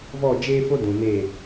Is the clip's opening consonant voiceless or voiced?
voiced